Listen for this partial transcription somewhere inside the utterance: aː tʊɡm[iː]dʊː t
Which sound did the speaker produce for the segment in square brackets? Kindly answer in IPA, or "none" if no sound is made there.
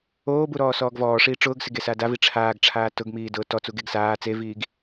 iː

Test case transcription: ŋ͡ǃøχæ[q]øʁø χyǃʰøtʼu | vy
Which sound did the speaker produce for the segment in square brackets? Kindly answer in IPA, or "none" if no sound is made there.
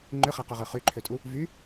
q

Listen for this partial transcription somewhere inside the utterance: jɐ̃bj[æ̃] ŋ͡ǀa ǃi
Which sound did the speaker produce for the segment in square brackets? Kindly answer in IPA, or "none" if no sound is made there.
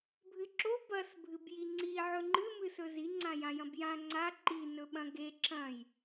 ã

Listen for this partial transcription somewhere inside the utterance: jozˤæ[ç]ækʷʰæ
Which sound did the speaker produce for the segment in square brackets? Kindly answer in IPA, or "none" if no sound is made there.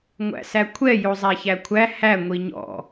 ç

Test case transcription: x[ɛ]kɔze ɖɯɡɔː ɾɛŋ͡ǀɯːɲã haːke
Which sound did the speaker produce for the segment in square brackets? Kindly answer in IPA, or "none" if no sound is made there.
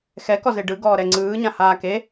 ɛ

